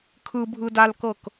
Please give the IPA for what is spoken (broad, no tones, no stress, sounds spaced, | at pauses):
kʰ ɯ bʱ ɯ d a l k ɤ k